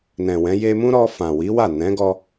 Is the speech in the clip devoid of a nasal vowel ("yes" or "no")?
no